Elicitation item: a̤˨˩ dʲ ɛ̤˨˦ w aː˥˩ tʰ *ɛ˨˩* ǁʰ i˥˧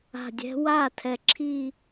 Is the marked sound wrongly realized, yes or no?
no